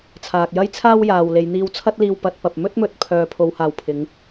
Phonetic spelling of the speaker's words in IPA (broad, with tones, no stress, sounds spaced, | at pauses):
t͡sʰ aː˨ k̚ j ɐ˥ j t͡sʰ aː˥ w j aː˨ w l e˨˧ j n̪ iː˧ w t͡sʰ ɐ˥ t̚ l iː˧ w p ɐ˨˥ t̚ p ɐ˨ p̚ m ɵ˥ t̚ m ɵ˨˥ t̚ pʰ œː˨ pʰ o˨˧ w h aː˨ w pʰ ɪ˨˧ ŋ